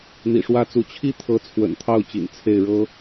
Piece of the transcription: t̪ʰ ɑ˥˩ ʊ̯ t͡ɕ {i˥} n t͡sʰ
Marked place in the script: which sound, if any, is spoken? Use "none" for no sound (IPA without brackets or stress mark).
ḭ˨˩